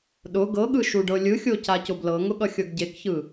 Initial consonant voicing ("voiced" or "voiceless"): voiced